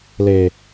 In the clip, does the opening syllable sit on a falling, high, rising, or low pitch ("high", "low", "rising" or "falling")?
low